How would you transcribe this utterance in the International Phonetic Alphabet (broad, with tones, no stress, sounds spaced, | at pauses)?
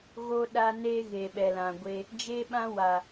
ɣ o˧ ɗ a˧ n e˦ ɣ e˨ ɓ ɛ˨ l ã˨ ɡʷ e˧ | d͡ʒ e˦ ɓ ã˦ w a˨